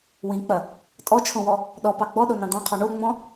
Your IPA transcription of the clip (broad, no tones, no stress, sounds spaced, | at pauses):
w ĩ k͡p ɐ | tʼ ɔ t͡ʃʰ õ w ɔ | ɗ ɔ p ɑ ɡ͡b ɔ ɗ o n ɑ̃ d̪ ɑ̃ qʰ ɔ ɳ o ŋ͡m ɔ̃